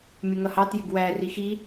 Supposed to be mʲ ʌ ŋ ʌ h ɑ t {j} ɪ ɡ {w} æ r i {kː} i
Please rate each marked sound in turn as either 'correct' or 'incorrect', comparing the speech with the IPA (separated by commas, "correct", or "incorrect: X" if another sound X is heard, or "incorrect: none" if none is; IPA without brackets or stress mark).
correct, correct, incorrect: x